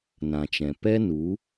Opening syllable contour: low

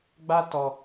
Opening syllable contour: high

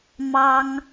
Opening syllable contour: high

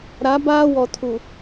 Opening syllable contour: rising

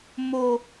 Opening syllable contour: high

